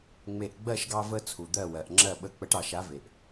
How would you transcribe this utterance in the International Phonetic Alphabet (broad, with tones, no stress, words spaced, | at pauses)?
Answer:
ŋ͡me˧˩ʔɡ͡bɜ˥˨ʃɡɑ˦ və˦ t͡sʰu˩d̪ɜ˧˩wɜ˩ʔŋ͡ǁɜ˧˩ ɓə˧˩ k͡pə˨˩˦ʈɑ˨˩˦ʃa˨˦ve˩ʔ